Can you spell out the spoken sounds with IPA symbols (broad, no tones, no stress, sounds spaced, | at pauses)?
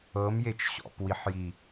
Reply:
ɤ m j e t͡ʃ ɕ ɔ̰ p w i ħ j i